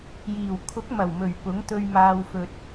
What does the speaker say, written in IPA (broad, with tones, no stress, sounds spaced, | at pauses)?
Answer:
j iː˨˩ w kʰ ʊ˨˥ k̚ m ɐ˨˩ w m ɵ˨˩ ɥ p ʊ˨˥ ŋ t̪ ɵ˧ ɥ m aː˧ w f ɵ˧ t̚